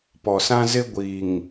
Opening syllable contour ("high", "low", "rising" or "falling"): low